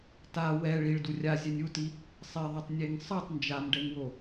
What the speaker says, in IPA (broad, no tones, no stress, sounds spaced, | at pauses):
t a w ɛ ɭ i ɭ d u rʲ a zʲ ɛ nʲ u t i | sˤ e ðˤ a tˤ nʲ e ŋ sˤ ɯ tˤ n d͡ʒ a m ɖ ɛ ŋ w o